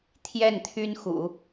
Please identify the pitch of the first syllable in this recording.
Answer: falling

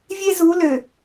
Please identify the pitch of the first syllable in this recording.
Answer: high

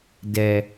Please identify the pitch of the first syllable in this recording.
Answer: low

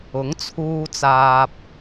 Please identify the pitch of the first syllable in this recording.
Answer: rising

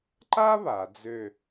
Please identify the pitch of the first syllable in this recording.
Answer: high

